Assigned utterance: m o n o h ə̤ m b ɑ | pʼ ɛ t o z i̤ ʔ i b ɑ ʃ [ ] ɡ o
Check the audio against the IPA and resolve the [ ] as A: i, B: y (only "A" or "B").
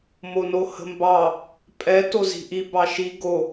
A